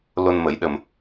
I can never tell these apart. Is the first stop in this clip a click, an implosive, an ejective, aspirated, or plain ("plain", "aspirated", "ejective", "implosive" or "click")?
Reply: implosive